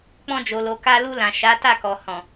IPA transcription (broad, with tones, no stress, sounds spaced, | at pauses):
k͡p ɔ̃˧ d͡ʒ o˨ l o˨ k a˧ l u˧ l ã˨ ʃ a˨˦ t a˦˨ k ɔ˨ h ɔ̃˨